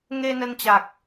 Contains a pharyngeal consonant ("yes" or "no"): no